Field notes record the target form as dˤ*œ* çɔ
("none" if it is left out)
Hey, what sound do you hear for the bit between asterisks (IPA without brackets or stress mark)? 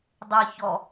ɛ